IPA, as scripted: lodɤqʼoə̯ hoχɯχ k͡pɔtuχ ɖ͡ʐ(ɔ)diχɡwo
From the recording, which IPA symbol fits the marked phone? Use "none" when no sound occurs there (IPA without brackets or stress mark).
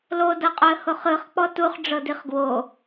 ɤ